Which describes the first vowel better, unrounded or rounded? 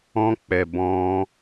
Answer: rounded